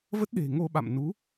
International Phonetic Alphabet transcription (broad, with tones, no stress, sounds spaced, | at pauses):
v ə˦˥ t̚ ɗ e̤˨˩ ŋ o˧ ɓ a̰˧˨ m n u˨˦